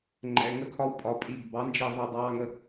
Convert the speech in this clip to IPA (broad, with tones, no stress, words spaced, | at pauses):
ŋ͡ǃɛ̰˩˧˩ŋə˧kʰɒ˧wpʼɒ˩˧ pʼi˩˧˩ɡbɑ˩˥nd͡ʒi˧˩ ðˤʌ˧˩dˤɑː˧ŋə˧